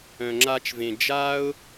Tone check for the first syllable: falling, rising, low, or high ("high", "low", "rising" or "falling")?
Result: low